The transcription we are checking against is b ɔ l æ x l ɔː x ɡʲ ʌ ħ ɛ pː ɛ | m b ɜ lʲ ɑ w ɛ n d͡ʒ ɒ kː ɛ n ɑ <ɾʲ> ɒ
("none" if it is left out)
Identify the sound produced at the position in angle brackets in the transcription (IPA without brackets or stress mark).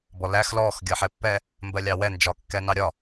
ɾʲ